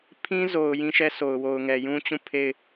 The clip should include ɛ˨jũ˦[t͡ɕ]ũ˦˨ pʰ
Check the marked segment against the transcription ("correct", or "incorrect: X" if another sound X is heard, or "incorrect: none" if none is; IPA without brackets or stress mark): correct